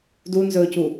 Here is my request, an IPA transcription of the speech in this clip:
dunzɵːcu

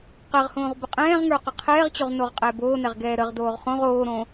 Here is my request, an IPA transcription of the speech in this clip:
qɛʁhõːʁ bəqʼɛ̃ːʁŋə˞ qəqʰɛːʁt͡ɕoʁ noʁqʼɛboːnɛʁ ɡɛːɾəʁdoːʁ χõʁ oːɾõ

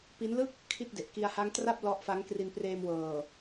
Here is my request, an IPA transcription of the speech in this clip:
pi˦˥nlɯ˥˩k̚ | kʰi˥˩t̚de˨˩ʔ ki˧a̯ha˦˥ŋtra˥˩p̚ lɔ˦˥ʔfa˦˥ŋ kri˧npreː˧mwɤː˨˩

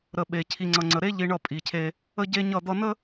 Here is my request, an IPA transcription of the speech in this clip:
ɾə˨ ɓe˨ cʰi˨ŋ͡ǀʌ˨ŋ͡ǀə˨ ɾe˦ʎi˨ ɳʌ˦˨pʼi˨cʰe˦ | ə˦ɟe˦ɲʌ˦˨d̪ʌ˦ nə˦

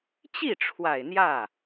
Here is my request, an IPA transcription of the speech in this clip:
t͡ɕi˥˩ʈ͡ʂʰwa˨˩ɪ̯ n̪jä˥˩

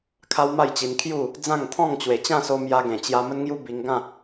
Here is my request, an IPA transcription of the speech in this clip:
kʰa˦wma˥˧jt͡ɕi˧n kʰju˥˧ | d͡zã˥˧ŋt̪ʰɔ̃˥˧ŋ t͡ɕwe˨˩t͡ɕã˥˧so˧ mja˧ɡẽ˨˩t͡ɕja˧ mə˦nŋju˦ bi˧ŋ ɡã˥˧

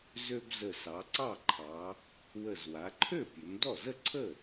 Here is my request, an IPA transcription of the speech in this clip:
zø˧bzə˨˩sɑ˩˧ ǀɑ˥˩ǃʰɑ˩˧ | wə˨˩zwa˩˧ǃʰø˥˩ pʲø˩˧mdɔ˥˩ zə˥˩ǀʰə˥˩

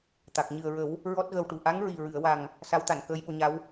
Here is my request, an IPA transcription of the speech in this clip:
t̪a˨˩k̚ ɲɨ˨˩ə̯ɹə˨˩˦w | ɹɔ˦˥t̚ɣə˧wʈu˨˩ ʔa˧˥ŋɹi˨˩ɹɨ˨˩˨ə̯wa˨˩ŋ | sa˧˥wt̪a˨˩˨n kəː˧jɓo˧ɲa˧˥w

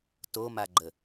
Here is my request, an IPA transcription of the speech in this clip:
tomaɡ͡ǃə

